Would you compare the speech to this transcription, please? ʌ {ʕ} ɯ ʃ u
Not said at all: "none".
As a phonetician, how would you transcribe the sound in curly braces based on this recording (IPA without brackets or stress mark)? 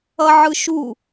ʕ